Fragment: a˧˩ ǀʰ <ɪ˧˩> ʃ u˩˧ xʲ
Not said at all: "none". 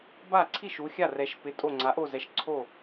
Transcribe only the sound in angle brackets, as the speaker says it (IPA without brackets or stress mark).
i˧˩